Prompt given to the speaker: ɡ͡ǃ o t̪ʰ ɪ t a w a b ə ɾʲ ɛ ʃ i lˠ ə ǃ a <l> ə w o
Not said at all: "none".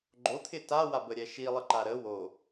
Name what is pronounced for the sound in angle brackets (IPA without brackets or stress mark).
ɾ